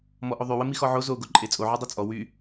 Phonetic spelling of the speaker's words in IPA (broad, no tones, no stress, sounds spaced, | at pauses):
m ɔ ʔ o ðˤ y w ə m i x ɔ ʕ o z o ɡ o ǃʼ e t͡sʼ o ʕ o dˤ o t͡sʼ ɔ w y